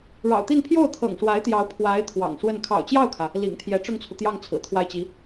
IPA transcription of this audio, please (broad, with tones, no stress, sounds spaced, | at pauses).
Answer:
ɻ ɑ̰˨˩ ʊ̯ t̪ i˥˧ n pʰ j o˥˩ ʊ̯ t̪ʰ ɤ̰˨˩ ŋ ʂ w a˧˥ ɪ̯ t̪ j ɑ˧˥ ʊ̯ pʰ w a˧˥ ɪ̯ t̪ʰ w ɑ̰˨˩ ŋ ʂ w ə˥˩ n kʰ ɑ̰˨˩ ʊ̯ t͡ɕ j ɑ˥˩ ʊ̯ kʰ ä˩ | l ḭ˨˩ ŋ t̪ʰ j ɛ˧˥ ʈ͡ʂ ʊ˥˩ ŋ t͡sʰ u˩ t̪ j ɑ˥˩ ŋ t͡sʰ ɹ̩˨˩ t̪ʰ w a˥˩ ɪ̯ t͡ɕ i˧˥